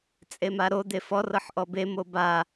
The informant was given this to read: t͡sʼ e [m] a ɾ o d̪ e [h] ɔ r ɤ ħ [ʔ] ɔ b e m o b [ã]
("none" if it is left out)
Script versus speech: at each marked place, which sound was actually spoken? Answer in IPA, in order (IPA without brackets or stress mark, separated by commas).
m, f, ʔ, a